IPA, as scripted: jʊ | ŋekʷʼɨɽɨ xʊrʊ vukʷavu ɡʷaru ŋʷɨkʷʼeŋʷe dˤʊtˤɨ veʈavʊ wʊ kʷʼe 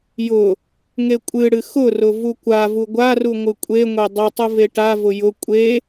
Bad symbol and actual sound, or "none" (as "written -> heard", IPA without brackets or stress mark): w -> j